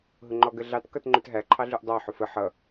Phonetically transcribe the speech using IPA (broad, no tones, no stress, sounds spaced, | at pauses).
ɦ ʊ ŋ͡ǃ ɔ ɡ ə ɮ ɑ t k ʌ t ŋ͡ǃ ʊ t ɦ æ ǃʰ ɑ ɮ u ʔ dˤ ɑ ħ ʊ f ə ħ ʌ